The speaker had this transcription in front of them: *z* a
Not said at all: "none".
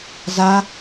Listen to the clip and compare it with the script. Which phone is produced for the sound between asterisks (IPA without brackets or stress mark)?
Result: z